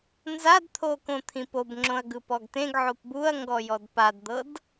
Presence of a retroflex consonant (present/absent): absent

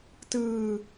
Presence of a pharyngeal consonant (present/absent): absent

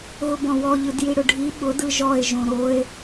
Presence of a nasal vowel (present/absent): present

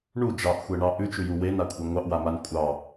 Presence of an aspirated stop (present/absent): absent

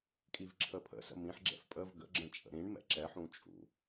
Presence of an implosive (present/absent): absent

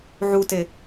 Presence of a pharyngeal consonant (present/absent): present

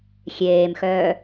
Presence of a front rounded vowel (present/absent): present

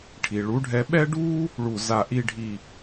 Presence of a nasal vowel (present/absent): absent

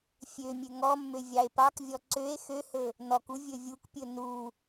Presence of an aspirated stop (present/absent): absent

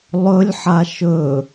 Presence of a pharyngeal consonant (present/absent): present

